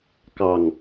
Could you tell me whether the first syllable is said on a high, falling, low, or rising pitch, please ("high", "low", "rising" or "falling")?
low